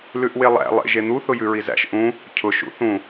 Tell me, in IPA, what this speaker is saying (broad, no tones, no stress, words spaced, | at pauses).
lʉʔwelˠæ̰ lˠḛʒ en̪u θʊjʉɹizæ̰ʃ ʔũ | cʰʊ ʃṵθũ